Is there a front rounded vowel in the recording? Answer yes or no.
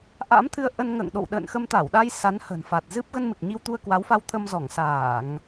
no